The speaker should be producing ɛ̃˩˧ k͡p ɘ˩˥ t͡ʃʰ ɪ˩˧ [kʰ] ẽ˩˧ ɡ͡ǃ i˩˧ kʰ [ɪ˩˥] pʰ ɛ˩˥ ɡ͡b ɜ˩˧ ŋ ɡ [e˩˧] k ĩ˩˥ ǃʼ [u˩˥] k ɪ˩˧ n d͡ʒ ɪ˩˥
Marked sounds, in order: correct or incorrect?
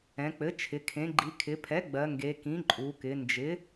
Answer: correct, incorrect, correct, incorrect

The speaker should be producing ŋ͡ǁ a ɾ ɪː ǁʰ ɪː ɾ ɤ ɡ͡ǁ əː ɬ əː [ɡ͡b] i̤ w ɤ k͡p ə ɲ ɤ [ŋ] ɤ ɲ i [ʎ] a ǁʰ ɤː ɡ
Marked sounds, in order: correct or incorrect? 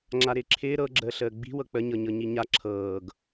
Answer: correct, incorrect, incorrect

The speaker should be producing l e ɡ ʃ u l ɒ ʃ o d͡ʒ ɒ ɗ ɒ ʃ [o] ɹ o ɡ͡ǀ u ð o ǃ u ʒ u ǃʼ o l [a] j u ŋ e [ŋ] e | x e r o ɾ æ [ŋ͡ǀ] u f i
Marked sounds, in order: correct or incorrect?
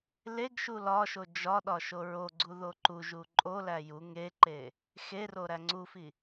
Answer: correct, incorrect, incorrect, correct

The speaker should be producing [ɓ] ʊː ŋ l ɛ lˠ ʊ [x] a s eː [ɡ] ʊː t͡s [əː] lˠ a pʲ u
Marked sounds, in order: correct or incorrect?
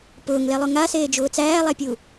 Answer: incorrect, incorrect, incorrect, incorrect

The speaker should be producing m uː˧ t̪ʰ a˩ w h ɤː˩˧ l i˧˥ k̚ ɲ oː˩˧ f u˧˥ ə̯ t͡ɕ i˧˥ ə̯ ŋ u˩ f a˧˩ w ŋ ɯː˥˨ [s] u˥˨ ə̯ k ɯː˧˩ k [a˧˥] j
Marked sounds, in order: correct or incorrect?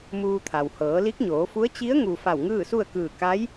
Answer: correct, correct

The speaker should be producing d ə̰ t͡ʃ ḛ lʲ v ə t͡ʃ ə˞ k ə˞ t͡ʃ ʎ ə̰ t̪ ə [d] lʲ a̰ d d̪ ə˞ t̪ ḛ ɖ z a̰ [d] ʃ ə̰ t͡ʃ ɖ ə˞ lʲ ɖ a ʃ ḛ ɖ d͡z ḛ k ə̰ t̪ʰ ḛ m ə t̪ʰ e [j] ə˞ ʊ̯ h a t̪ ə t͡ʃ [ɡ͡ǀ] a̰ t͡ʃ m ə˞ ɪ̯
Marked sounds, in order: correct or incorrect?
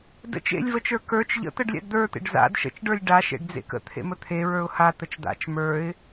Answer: incorrect, correct, incorrect, incorrect

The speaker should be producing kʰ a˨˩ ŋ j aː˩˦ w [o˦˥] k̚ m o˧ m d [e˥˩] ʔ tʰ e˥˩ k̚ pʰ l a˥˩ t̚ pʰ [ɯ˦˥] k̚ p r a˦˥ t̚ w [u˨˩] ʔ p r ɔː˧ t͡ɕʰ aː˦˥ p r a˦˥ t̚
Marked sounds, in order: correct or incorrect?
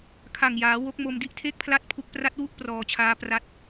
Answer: correct, incorrect, incorrect, incorrect

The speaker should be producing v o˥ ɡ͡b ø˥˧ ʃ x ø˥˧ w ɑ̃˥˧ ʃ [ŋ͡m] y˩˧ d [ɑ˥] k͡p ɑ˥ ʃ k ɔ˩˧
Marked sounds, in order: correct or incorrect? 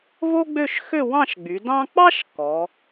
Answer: incorrect, incorrect

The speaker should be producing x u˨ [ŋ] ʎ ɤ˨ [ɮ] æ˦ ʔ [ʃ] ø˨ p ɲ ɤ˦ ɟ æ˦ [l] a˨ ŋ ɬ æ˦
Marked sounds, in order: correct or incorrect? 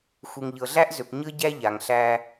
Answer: correct, correct, incorrect, incorrect

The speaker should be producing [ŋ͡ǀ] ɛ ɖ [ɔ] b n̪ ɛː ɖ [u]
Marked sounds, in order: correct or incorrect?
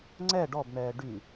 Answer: correct, correct, incorrect

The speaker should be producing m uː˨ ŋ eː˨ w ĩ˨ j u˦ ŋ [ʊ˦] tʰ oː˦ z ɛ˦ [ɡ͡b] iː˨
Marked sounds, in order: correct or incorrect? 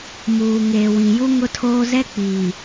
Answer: correct, incorrect

